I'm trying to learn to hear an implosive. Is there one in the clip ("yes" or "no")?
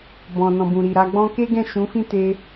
no